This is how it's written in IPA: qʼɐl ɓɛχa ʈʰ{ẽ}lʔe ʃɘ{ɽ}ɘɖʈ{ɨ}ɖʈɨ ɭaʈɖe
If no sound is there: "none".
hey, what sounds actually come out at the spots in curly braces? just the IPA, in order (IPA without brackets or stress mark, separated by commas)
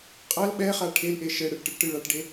e, ɽ, ɨ